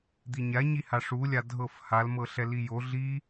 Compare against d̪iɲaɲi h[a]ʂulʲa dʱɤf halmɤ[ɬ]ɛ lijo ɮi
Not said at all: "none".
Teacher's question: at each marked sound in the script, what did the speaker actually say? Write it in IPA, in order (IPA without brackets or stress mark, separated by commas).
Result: a, ɬ